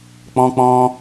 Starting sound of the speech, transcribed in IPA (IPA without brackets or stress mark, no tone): k͡p